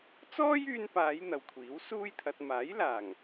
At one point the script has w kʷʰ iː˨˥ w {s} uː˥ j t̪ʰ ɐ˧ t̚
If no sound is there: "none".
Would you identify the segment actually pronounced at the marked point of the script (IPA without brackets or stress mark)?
s